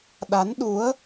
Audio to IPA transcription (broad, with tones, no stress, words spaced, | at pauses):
ɗa˨˦nɗu˨˦ə̯